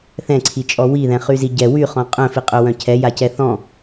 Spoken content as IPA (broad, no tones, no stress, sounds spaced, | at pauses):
θ ɛ̃ ǀʰ i t͡ʃʼ ɔ w i ð ɛ̃ χ y z i ɟ ɛ w y χ ɔ̃ qʼ œ̃ f i qʼ œ w œ̃ cʰ ɛ j a c ɛ θ ɔ̃